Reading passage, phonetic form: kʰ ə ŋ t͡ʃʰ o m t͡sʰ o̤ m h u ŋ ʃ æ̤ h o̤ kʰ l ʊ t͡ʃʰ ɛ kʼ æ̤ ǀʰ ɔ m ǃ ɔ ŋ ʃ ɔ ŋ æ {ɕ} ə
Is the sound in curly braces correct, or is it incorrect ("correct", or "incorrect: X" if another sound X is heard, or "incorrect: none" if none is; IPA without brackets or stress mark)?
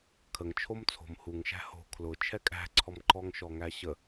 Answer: correct